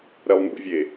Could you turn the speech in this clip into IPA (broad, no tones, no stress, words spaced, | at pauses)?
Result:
ɾɛlˠnṵvʲe